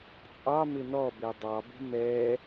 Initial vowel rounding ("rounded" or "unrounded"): unrounded